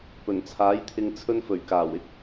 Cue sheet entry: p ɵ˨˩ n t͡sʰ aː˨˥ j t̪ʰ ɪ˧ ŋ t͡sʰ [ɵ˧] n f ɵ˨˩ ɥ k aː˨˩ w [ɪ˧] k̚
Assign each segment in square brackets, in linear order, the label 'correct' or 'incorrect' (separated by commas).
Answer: correct, incorrect